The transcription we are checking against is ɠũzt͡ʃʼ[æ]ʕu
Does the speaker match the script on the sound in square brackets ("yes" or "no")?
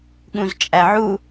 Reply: yes